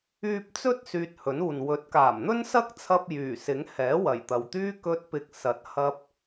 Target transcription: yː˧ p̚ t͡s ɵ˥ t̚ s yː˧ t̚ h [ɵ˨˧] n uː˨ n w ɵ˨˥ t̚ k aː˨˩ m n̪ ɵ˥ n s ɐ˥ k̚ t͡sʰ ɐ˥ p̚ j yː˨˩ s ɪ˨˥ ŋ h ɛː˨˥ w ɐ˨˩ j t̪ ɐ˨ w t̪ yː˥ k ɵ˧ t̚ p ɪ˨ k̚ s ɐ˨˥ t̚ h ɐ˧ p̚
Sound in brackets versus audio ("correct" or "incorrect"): incorrect